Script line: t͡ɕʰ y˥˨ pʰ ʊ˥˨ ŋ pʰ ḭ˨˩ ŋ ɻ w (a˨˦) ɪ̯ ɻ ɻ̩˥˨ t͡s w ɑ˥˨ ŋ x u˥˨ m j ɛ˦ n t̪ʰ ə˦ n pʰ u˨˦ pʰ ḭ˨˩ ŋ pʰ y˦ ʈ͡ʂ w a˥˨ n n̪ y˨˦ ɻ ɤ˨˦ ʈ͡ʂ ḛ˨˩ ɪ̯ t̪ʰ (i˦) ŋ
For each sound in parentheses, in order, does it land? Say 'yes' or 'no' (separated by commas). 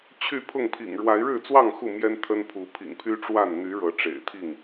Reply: yes, no